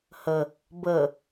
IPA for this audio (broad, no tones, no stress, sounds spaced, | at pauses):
h ə | b ə